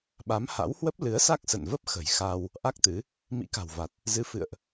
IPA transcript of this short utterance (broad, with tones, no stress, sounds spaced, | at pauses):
ɓ a˨˦ m h a̰˧˥ w h w ə˦˥ p̚ l ɨ˨˦ ə̯ s a˦˥ k̚ s ə̰˧˨ n v ə˦˥ p̚ x ə̤˨˩ j x a˧ w | ʔ a˦˥ k̚ t̪ ɨ˨˦ | m ḭ˧˥ k a̤˨˩ w v a˨˩ t̚ | z ɨ˨˦ f ɨ̰˧˨ ə̯ ʔ